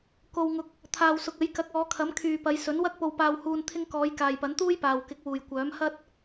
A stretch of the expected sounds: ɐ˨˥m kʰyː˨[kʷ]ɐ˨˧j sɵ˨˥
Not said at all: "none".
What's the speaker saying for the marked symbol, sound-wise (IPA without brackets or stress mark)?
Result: p